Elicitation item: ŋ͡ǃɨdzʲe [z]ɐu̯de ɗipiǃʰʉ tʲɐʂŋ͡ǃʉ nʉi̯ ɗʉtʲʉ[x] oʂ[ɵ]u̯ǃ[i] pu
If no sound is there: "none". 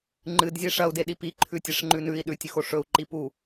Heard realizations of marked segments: ʂ, x, ɵ, i

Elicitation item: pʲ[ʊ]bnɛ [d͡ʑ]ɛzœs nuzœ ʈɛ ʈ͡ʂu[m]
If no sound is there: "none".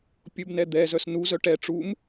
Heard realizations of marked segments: ʊ, d̪, m

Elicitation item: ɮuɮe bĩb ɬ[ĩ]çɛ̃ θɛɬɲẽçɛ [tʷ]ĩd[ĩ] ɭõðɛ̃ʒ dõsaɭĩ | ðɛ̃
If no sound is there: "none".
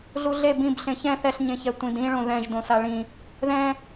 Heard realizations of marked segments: ẽ, tʷ, ĩ

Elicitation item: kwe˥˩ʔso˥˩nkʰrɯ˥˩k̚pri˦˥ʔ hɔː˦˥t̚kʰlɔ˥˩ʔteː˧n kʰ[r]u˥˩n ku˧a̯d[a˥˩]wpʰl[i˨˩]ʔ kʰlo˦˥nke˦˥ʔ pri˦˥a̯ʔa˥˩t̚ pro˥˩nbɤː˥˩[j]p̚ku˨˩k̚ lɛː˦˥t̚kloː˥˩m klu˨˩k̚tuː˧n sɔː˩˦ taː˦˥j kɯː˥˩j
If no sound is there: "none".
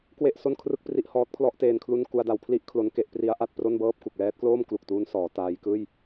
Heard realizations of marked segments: l, a˩˦, i˥˩, none

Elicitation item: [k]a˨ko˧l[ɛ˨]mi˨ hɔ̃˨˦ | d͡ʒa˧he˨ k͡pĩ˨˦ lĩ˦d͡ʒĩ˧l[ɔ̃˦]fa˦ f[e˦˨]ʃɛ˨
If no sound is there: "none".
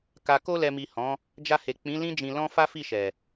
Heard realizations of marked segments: k, ɛ˨, ɔ̃˦, i˦˨

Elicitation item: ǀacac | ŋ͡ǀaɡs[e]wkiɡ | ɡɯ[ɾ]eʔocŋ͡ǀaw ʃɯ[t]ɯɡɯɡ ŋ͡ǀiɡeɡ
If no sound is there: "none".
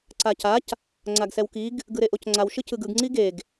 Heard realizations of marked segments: ɛ, ɾ, c

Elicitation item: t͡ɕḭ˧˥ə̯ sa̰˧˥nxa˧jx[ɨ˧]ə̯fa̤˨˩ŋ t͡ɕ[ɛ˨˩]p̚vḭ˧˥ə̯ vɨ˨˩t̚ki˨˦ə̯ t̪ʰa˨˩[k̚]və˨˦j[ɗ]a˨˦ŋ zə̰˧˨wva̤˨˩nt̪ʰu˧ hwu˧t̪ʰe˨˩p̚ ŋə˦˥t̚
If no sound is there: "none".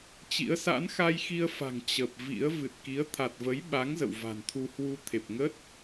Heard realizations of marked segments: i˧, ə˨˩, t̚, ɓ

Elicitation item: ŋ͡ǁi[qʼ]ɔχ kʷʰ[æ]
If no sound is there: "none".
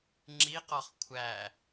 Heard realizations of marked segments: q, æ

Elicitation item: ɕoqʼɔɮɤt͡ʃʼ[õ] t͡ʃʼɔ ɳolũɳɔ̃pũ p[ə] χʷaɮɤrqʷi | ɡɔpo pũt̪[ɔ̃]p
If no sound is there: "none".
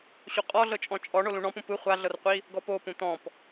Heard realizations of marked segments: ɔ̃, ɯ, ɔ̃

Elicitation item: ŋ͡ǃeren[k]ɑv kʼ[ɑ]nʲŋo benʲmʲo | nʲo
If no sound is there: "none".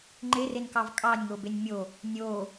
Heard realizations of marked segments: k, ɑ

